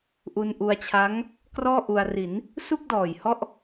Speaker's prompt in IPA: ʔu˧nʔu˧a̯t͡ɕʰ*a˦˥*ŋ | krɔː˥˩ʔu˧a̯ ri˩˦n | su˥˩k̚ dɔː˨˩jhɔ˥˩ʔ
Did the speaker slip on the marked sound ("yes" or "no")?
no